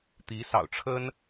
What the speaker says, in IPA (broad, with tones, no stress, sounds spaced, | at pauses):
t̪ i˧˥ s ɑ̰˨˩ ʊ̯ ʈ͡ʂʰ ə˥ n